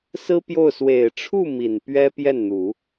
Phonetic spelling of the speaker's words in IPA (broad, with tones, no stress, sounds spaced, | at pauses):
s ɹ̩˥ p j o˥˩ ʊ̯ s w e˨˩ ɪ̯ ʈ͡ʂʰ u˥˩ m i˨˩ n p ɥ ɛ˥ p j ɛ˥˩ n n̪ u˨˩˦